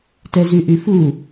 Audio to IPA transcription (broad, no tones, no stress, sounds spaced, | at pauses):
t ɛ z y ʔ y f u